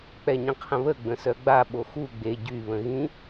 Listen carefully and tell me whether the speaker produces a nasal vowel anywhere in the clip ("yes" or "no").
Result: yes